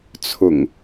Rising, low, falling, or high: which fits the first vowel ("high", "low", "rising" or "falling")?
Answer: low